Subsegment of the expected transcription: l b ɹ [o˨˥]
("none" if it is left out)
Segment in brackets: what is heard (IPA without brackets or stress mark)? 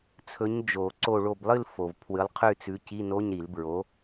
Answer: o˨˥